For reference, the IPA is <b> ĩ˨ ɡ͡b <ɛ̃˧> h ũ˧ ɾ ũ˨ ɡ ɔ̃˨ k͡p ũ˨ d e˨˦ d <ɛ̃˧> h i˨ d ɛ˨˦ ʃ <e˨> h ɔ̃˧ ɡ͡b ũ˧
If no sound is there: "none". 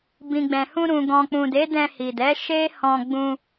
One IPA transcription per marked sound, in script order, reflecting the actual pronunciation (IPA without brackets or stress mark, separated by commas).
b, ɛ̃˨, ɛ̃˧, e˦